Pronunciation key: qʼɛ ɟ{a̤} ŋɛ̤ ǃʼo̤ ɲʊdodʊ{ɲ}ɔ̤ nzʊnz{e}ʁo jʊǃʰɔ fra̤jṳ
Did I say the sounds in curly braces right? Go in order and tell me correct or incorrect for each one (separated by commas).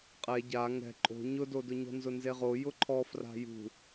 incorrect, correct, correct